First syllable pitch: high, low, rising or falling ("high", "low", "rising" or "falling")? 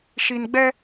low